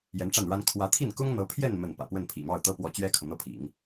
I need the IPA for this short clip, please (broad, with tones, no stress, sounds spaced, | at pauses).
j ɛ˧˥ n ʈ͡ʂ a˥˩ n ɻ a˥ n kʰ w ä˧˥ t̪ʰ i˥˩ n k ʊ˥ ŋ n̪ ɤ˧˥ pʰ j ɛ˥˧ n m ə˥˩ n p ä̰˨˩ p w ə˥˩ n pʰ ḭ˨˩ m ɑ˥˩ ʊ̯ t̪ ɤ˥ p w ɔ˧˥ t͡ɕ ɥ ɛ˥ kʰ ɤ˨ n̪ ɤ˥˩ pʰ ḭ˨˩˦ ŋ